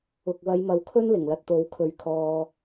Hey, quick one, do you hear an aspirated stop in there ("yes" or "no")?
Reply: yes